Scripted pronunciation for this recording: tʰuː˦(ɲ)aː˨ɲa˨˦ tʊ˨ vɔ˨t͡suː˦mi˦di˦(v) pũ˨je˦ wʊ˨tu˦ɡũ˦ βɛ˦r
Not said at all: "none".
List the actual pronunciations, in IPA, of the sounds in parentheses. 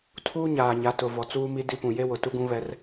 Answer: ɲ, none

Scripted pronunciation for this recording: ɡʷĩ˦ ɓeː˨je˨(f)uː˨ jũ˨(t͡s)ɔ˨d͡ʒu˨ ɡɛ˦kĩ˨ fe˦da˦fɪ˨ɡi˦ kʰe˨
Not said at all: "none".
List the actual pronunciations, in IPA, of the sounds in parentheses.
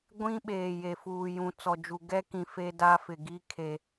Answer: f, t͡s

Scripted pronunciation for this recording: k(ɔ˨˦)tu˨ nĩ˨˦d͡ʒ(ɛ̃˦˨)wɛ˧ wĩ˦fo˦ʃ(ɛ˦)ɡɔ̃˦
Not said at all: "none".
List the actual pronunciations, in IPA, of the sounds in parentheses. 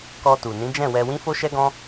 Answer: ɔ˧, ɛ̃˦˨, ɛ˦

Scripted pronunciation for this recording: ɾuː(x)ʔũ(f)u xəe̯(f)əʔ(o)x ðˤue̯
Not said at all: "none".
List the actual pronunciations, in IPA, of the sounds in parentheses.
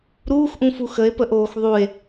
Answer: x, f, p, oː

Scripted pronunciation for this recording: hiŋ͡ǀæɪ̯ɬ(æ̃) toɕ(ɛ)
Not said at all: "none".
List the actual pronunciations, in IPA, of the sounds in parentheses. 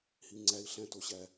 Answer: æ̃, æ

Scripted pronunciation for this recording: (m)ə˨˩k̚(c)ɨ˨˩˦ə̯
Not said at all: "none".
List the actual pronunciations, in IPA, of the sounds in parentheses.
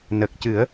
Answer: n, c

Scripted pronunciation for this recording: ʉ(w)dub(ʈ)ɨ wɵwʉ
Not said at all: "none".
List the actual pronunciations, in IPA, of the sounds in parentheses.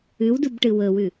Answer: w, ʈ

